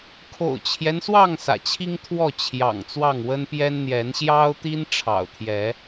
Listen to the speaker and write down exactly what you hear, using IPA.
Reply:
kʰo̰˨˩ʊ̯t͡ɕʰjɛ˦nswɑ˥˨ŋ sä̰˨˩t͡ɕʰi˦ŋ t̪ʰwɔ˥˨t͡ɕʰjɑ̰˨˩ŋ t͡swɑ˥˨ŋwə˦npjɛ˦n n̪jɛ˨˦nɕjɑ˦ʊ̯t̪i˦n ʈ͡ʂʰɑ̰˨˩ʊ̯t̪ʰjɛ˨˦

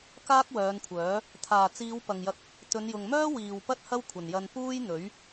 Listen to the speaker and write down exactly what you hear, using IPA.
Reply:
kaː˥k̚wœː˨˧nkʷʰœː˨˥ | t̪ʰaː˨˩t͡siː˨˧w pɐ˨ŋjɐ˧k̚ | t̪ɵ˨˧njʊ˨ŋ mœː˥ wiː˨wpɐ˥t̚ hɐ˥wkʷʰɐ˨˩njɐ˧n puː˥jn̪ɵ˨˥ɥ

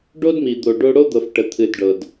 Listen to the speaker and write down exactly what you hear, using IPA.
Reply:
ɖo˦dmi˨d̪o˨ ɖo˦ ɽo˦d̪ɤ˨f ʈə˨t̪ʰɨ˨d ɖɤ˨d

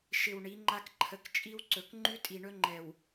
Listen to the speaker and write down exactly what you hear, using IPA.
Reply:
ʃɪ˨w ɳi˨˦ŋ͡ǃa˦k ǃʰə˨k t͡ʃʼi˦wǀɵ˨k ŋ͡ǃʉ˦tʼi˨ɳɵ˦ŋ͡ǃɛ˨w

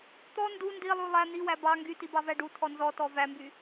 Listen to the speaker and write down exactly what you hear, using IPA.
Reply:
t̪ɔ ndu ndilˠu lˠæ n̪iwæ bɑ ŋɡytibɑvæ ɖutʰɔ nzɔtɔ væmby

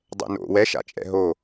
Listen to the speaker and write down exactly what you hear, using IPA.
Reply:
dˤɛ̰no̰ wɛʃa̰t͡ʃʼɛ̰ ɦo

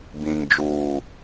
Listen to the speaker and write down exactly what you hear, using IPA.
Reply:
bĩ˨ŋ d͡ʒuː˨

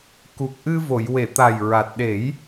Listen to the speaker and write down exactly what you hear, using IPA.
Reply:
ku˨˩k̚ʔɨ˧vo˨˩˨j we˨˩˨t̪a˨˩j ɹa˨˩t̚ɗe˨˩˦j

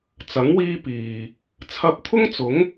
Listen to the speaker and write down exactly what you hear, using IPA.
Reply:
t͡sɐ˨˥ŋ wiː˥ piː˨ | t͡sʰɐ˧p̚t̪ʰʊ˥ŋt͡sʊ˨˥ŋ

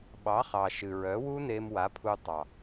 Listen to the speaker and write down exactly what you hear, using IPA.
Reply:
ɓɑ˨˦χɑ˨ʃɨ˨ɹœ˨˦ wu˦ne˧m wa˨˦pʰu˧tˤɑ˨

